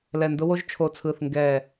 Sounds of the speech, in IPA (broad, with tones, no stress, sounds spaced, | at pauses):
l ɛ˨˩ n d ʊ˧ w o˧ ʒ t͡ʃʰ o˨˩ t͡sʰ ɯ˨˩ θ ŋ ɡ ɛ˨˩